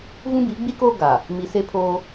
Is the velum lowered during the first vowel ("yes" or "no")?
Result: yes